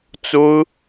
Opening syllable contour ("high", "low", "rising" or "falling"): high